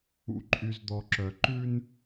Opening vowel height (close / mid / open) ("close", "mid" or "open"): close